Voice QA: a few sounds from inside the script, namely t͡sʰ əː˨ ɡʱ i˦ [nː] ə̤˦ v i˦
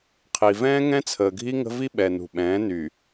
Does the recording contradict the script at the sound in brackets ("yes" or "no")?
yes